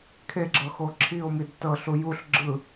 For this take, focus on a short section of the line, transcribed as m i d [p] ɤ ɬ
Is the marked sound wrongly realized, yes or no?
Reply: yes